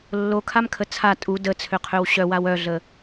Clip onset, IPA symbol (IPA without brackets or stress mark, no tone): lː